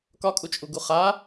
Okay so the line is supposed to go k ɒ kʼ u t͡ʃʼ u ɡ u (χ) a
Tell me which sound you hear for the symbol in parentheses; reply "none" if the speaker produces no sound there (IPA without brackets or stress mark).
χ